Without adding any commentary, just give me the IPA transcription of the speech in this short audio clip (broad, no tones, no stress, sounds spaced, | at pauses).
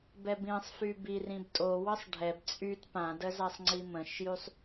b ɛ b ĩ sˤ f y b i r ĩ b tʼ o w ə sˤ ɖʱ ɛ b t͡sʼ y t p ã d ə z a sˤ ŋ͡ǀ i m ə̃ ʃ j y sˤ